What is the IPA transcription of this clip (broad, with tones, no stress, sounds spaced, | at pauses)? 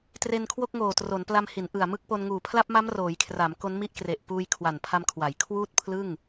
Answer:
t r e˧ n kʰ w o˥˩ k̚ ŋ oː˨˩ t r o˩˦ n p l a˧ m h i˩˦ n ʔ ɯ˨˩ a̯ m ɯ˦˥ k̚ p o˧ n ŋ uː˨˩ pʰ l a˥˩ p̚ m a˦˥ m r oː˩˦ j kʰ r a˩˦ m k o˦˥ n m i˦˥ ʔ k r e˨˩ ʔ p uː˧ j kʰ w a˨˩ n pʰ a˧ m kʰ w a˩˦ j kʰ w uː˥˩ t̚ pʰ l ɯ˥˩ ŋ